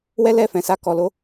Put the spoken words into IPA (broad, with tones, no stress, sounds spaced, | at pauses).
w ɛ˦ l ɛ˦˨ f ɛ̃˨ s a˧ k ɔ˨ l o˧